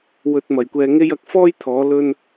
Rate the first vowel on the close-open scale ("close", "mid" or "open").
mid